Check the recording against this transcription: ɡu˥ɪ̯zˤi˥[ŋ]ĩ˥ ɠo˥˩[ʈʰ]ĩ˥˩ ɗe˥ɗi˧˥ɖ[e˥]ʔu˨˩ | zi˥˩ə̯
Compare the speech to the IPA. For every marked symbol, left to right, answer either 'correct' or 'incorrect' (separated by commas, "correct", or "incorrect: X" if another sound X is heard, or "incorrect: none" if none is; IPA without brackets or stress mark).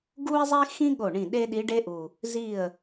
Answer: incorrect: x, incorrect: ɳ, correct